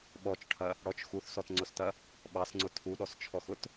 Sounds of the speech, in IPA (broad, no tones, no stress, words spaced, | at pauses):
ɓɔt͡ʃʈʰɐ | ɽɔt͡ʃ xuθsɔtŋ͡ǀʊstɐ | ɓɑsŋ͡ǀʊ tʰuɗɔst͡ʃʰɔxʊt